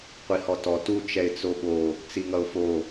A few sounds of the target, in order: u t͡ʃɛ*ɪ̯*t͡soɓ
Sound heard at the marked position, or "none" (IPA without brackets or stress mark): ɪ̯